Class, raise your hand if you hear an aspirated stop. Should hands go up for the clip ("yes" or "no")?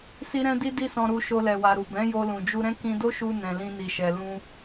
no